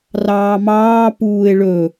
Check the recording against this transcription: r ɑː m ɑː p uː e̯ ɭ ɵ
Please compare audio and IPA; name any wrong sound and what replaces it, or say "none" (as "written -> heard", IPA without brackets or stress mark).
none